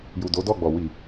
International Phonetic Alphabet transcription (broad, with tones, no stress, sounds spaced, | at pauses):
j u˨ d o˨˦ d ɔ˦˨ ɡ͡b ɔ˨ w i˨